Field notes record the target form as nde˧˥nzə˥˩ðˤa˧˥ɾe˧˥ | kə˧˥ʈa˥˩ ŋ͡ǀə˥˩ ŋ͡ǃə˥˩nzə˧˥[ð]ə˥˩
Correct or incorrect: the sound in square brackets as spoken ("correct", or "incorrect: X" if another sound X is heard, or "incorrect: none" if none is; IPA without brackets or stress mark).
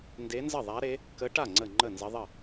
incorrect: ðˤ